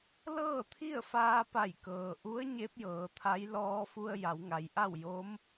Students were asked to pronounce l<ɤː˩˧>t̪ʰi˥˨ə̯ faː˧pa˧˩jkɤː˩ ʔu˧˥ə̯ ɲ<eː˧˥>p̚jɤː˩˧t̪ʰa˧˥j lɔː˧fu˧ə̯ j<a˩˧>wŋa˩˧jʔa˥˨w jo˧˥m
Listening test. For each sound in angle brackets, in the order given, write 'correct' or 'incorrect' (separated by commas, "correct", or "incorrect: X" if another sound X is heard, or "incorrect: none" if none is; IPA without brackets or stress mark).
incorrect: ɤː˥˨, incorrect: e˧˥, correct